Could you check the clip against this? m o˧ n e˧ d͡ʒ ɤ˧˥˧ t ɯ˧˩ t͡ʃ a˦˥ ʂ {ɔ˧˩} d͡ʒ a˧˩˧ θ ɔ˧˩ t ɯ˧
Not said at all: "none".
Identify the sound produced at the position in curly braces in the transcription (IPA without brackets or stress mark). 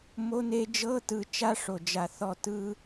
o˧˩